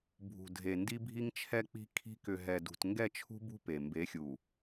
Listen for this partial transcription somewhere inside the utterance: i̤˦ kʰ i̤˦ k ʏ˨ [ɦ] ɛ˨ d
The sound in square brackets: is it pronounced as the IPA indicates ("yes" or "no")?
yes